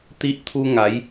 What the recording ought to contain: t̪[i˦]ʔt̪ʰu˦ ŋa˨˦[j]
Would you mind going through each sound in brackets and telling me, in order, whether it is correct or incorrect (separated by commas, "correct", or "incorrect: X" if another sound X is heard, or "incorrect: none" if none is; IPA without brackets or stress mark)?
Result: correct, correct